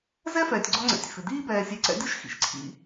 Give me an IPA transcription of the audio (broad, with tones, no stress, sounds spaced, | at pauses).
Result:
z ɛ˥ f ɛː˨ tʲ ɡ͡ǀ ɔ˦ ŋ͡ǀ ɛ̰˨ tʲ f ɪ˩ d iː˦ b ɛː˨ sʲ e˨ ǀ ɛ̰˦ dʲ o˥ ʃ x ḭ˩ ʃ ǀʰ ḭ˨